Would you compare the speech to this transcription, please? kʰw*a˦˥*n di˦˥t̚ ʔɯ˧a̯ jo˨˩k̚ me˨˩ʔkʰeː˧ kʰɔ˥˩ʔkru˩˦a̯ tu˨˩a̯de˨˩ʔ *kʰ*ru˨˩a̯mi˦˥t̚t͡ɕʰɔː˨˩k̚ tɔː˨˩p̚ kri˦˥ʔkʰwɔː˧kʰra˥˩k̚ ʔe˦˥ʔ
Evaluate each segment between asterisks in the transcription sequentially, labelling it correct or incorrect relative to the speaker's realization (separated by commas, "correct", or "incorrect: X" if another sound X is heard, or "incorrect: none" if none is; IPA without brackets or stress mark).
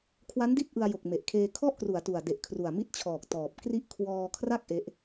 correct, correct